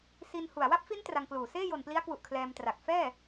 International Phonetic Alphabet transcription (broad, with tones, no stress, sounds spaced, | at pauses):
s i˧ n h u˨˩ a̯ w a˥˩ p̚ f i˦˥ n t r a˧ ŋ k l uː˨˩ s eː˥˩ j o˨˩ n p l i˦˥ a̯ k w u˨˩ ʔ kʰ l ɛː˧ m t r a˨˩ k̚ f ɛː˥˩